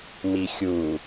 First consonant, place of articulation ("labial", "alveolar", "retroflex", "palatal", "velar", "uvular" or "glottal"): labial